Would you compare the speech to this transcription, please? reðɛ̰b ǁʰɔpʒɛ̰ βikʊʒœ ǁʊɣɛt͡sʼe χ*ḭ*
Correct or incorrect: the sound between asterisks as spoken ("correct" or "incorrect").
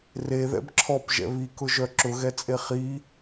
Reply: incorrect